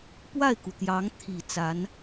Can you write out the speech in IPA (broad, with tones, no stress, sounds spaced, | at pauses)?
p w a˥˩ ɪ̯ k u˩ t̪ j ɑ˧˥ ŋ t̪ʰ i˨˩ t͡s a˧˥ n